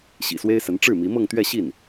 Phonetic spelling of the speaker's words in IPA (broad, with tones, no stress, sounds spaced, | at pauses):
ɕ ḭ˨˩ s w e˥ ɪ̯ s ə˧˥ n ʈ͡ʂ ɻ̩˥˩ m i˧˥ m ɤ˥˧ ŋ t̪ ɥ ɛ˥˧ ɕ i˥˩ n